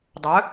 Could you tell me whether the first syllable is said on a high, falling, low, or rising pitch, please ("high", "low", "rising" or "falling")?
rising